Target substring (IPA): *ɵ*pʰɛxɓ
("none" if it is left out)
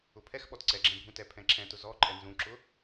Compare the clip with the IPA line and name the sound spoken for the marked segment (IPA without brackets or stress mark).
ʊ